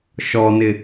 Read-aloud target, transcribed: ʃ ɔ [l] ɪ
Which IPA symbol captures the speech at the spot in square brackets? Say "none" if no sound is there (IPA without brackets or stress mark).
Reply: n